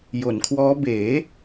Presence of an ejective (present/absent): absent